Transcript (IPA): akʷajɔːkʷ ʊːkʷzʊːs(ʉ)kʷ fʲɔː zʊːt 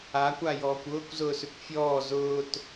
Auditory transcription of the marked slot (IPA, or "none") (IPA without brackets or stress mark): ʉ